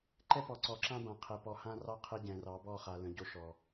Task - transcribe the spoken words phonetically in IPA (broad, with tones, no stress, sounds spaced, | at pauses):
ǃ ɛ˦ p ɔ˨ ǀ ɔ˨ ǁ ã˦ b ã˨ qʰ ɛ˨ p ɔ˨ h ã˦ r ɑ˦ qʰ ɛ˦ ɟ ɛ̃˨ r ɑ˨˦ b ɔ˦˨ χ a˨ l ə̃˨ ɟ o˦ ʃ ɔ˨